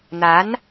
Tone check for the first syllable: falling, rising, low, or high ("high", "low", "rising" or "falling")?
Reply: rising